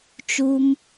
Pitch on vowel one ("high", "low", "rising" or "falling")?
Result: high